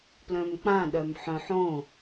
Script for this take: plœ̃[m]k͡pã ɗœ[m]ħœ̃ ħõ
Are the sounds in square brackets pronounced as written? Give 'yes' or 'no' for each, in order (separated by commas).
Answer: yes, yes